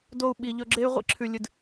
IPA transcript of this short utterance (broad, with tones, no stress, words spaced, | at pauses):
do˧u̯ɓi˨ ʎɵ˧ɡ͡ǁe˦y̯ ʁʷḭ˦ǁʰʉ˨lʲɨ˨d